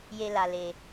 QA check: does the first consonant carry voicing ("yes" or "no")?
yes